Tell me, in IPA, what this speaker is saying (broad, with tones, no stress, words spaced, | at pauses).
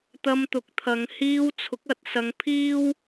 t̪ɐ˧mt̪ʊ˨˥k̚ t̪ʰɐ˨˧ŋ hiː˧wt͡sʰʊ˨˥k̚ ɐ˨˥t̚sɐ˧ŋ pʰiː˥w